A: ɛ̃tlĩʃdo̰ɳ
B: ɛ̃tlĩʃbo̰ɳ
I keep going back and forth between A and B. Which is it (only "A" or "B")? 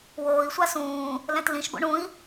B